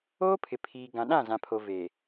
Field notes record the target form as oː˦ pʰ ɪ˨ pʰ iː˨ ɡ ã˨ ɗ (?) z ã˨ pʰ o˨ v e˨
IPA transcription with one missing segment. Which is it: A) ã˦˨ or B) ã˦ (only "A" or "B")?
A